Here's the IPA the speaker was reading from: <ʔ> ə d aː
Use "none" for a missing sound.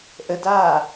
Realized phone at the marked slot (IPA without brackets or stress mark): ʔ